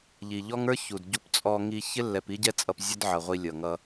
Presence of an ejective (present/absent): present